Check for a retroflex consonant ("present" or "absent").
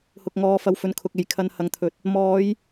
absent